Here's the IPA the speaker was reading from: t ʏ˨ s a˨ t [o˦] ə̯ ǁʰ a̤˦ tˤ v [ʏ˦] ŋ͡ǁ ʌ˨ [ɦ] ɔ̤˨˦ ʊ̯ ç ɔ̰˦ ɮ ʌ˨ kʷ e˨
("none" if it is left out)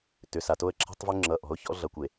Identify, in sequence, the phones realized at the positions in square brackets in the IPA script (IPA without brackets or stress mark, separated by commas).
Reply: o˦, ʏ˦, ʔ